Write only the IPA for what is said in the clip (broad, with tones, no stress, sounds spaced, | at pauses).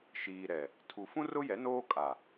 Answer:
ʃ iː˨ ɾ ɛ˨ | tʰ u˨ f ũ˦ r ʊ˦ j ɛ˨˦ n oː˦ kʼ a˨